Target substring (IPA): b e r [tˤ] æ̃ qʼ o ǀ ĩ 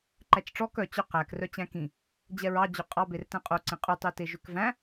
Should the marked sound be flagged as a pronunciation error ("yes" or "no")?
yes